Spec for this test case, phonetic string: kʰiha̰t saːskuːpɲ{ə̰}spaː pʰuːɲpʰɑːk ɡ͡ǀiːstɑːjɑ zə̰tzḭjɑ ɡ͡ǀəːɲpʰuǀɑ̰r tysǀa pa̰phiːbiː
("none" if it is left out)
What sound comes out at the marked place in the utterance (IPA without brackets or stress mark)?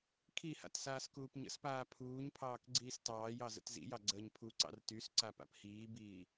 ə̰